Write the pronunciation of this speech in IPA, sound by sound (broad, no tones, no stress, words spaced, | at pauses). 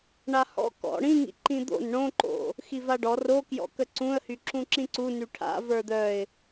ɳahɔ̰ kɔ̰ ɽĩŋḭ ǃĩd̪o̰n ɳõǃo̰ | xivaɖɔ rokjɔ̰kə ǀũə̯hyǁũ ǁĩǀu nyʈʰa̰ və˞d̪œɪ̯